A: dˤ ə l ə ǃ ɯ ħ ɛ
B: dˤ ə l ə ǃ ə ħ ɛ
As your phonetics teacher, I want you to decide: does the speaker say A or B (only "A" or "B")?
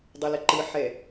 A